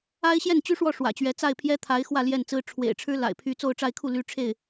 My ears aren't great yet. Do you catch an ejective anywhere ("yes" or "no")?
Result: no